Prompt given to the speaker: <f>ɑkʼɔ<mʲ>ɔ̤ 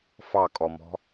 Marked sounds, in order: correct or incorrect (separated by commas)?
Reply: correct, incorrect